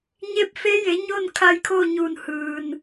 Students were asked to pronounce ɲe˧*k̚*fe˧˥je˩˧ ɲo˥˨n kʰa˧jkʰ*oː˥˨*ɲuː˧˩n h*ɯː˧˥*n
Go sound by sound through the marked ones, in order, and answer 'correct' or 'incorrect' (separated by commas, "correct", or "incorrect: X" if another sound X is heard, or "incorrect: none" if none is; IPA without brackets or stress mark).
incorrect: p̚, correct, incorrect: ɯː˩